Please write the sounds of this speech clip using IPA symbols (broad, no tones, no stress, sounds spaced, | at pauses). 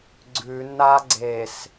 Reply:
ɡ͡ǀ ʉ n a ɡ͡ǀ e s